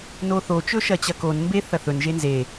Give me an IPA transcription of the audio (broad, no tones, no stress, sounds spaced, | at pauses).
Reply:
n o θ o t͡ʃ ɵ ʃ ɐ t͡ɕ ɐ k o n m b e θ ɐ θ ɵ n ʒ e n z e